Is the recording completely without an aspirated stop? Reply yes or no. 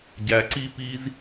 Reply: yes